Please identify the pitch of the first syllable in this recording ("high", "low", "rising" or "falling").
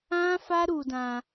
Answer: high